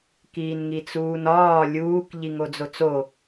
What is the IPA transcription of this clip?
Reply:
k iː n ŋ i t͡s uː n ɒː lʲ uː k ʎ i ŋ o d͡z o t͡s o

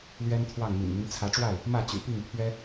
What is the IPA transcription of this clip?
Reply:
l ɥ ɛ˦ n t̪ʰ w ɑ˥˨ ŋ m ḭ˨˩ n m y˦ n t͡sʰ ä˨˦ ʈ͡ʂ w a˥˨ ɪ̯ | m ä˥˨ t͡ɕ y̰˨˩ p i˥˨ ŋ pʰ ɥ ɛ˦

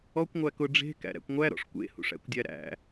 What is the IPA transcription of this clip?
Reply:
ɔ kʷ ŋʷ æ k ʊ ɖ͡ʐ e̤ k æ̰ ɾ æ̰ kʷ ŋʷ æ ɾ ɔ̰ ʂ kʷ ḛ h ṵ ʂ æ̰ kʷ dʲ æ ɾ æ̰

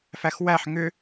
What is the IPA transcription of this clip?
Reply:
f æ x w æ ħ ŋ ʏ

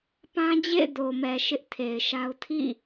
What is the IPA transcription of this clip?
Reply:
p ã˦ d͡ʑ ḛ˦˨ ɪ̯ d o˨ m ɛ˨ ʃ ɪ˦ ʔ tʰ e˨ ɪ̯ ʃ a˦ ʊ̯ tʰ ḭ˦˨

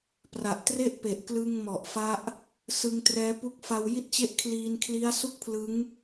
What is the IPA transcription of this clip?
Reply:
p r a˨˩ ʔ t r e˥˩ ʔ p e˨˩ ʔ k l ɯ˧ ŋ m ɔ˨˩ ʔ f a˦˥ ʔ | s ɯ˧ ŋ t r ɛː˦˥ p u˦˥ k̚ f a˧ w j i˥˩ t̚ t͡ɕ e˥˩ ʔ kʰ l iː˧ n kʰ l i˦˥ a̯ s u˥˩ k̚ pʰ l ɯ˦˥ ŋ

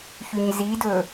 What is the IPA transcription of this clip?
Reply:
ç y ɲ z i d ɵ

